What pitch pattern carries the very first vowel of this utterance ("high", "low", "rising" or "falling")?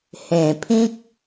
low